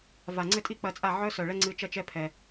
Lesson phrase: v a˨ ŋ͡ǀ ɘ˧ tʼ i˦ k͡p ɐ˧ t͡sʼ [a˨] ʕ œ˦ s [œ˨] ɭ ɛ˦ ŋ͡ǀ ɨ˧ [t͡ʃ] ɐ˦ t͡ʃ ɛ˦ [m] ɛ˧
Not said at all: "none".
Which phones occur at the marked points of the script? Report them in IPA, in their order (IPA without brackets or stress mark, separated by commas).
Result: a˦˨, œ˨, t͡ʃ, pʰ